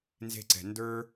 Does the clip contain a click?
yes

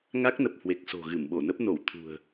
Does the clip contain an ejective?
no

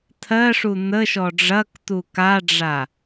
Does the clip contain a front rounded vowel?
no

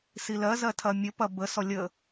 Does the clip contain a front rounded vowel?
no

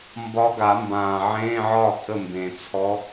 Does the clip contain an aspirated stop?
yes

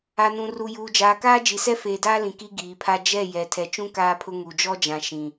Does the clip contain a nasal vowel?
yes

